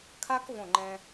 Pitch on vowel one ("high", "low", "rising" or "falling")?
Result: high